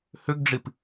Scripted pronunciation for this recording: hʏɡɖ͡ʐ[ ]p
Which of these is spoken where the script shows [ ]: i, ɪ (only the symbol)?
i